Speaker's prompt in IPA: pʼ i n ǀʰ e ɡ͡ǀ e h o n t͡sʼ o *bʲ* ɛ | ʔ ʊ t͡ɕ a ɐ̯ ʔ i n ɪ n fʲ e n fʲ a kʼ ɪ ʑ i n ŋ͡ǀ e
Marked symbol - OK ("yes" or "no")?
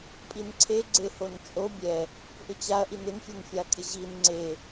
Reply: yes